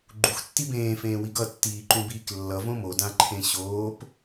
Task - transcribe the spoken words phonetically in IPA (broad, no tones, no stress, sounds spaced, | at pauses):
ɡ͡ǃ u x tː i b ẽː f ẽː w i ɡ ʌ tː iː ǃ ũ b iː k lː ʌ v õ m o d ã ǃʰ ẽ ɕ oː p